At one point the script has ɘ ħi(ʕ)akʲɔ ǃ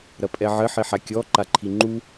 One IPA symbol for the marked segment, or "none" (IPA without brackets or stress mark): ħ